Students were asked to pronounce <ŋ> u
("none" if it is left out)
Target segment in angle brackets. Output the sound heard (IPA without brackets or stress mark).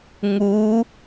ŋ